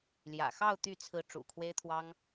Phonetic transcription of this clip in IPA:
ljä̰˨˩xɑ˥˧ʊ̯ t̪y˥˩ t͡sʰɹ̩˧˥ ʈ͡ʂṵ˨˩ kʰwe˥ɪ̯t̪ʰwɑ˥ŋ

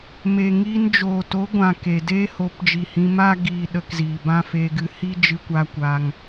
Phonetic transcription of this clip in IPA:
me˨ŋiː˧n d͡ʒoː˨to˨˦ɡʷã˨ ke˨ deː˦ho˨˦pd͡ʒi˨hĩ˧ ma˦ɡiː˧ ɗə˧kziː˨bã˦ fe˧ɡɨ˧hi˦ d͡ʒɨ˧kʷa˧kʷa˧ŋ

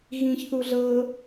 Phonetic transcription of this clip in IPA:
ɣĩç θuɮɤ

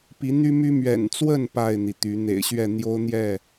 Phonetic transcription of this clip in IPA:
pi˨˦n̪y˦my˦ mɥɛ̰˨˩nt͡swə˥˨n pa˥˨ɪ̯n̪i˩t̪y˨˦ n̪ḛ˨˩ɪ̯ɕɥɛ˥˨ n̪jo˦ʊ̯n̪jɛ˥˨

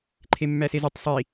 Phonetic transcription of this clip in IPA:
ǃʰemːæsezetˤ sˤi

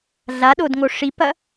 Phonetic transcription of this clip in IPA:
ɮaɗodŋo ʂipɐ

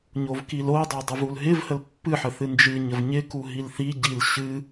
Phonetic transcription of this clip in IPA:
ɲovkilodˤo dˤəvulɦɪvhəl pːɨħə θɨnd͡ʒɨɲəv ɲɪku ɦilθiɟil ɕɨ

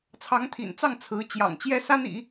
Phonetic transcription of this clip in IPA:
t͡sʰɑ˧˥ŋt̪ʰḭ˨˩nt͡sɑ˥˩ŋ t͡sʰɹ̩˧˥ t͡ɕjɑ̰˨˩ŋt͡ɕjɛ˥ sa˥nḭ˨˩˦

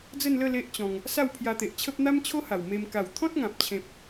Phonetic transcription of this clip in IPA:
d͡zə˥˧nlə˥˧ le˦ʔt͡ɕɔ̃˧ŋ | sa˥˧wpʰja˧t̪e˨ʔt͡ɕʰə˦p̚ n̪a˦mt͡ɕʰo˦ha˨˩w me˧m ka˨˩wt̪ʰɔ̃˦t̚ŋã˨p̚t͡ɕʰẽ˨p̚

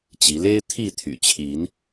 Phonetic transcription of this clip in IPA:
t͡ɕi˨˦ le˦ɪ̯t̪ʰi˥˨ t̪ʰy̰˨˩t͡ɕʰi˨˦n

